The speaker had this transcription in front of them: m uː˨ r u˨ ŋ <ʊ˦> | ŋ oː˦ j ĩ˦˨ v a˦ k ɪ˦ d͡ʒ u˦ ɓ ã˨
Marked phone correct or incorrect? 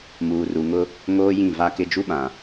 correct